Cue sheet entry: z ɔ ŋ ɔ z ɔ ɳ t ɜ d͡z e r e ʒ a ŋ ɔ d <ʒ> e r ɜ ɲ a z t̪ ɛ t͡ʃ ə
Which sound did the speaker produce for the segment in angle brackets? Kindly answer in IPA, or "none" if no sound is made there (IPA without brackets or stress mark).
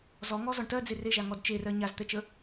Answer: t͡ʃ